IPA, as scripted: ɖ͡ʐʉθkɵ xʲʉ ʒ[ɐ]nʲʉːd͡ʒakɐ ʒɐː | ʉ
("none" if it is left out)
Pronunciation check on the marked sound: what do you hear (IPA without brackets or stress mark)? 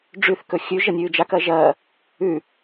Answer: ɐ